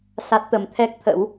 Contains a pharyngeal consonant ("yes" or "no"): no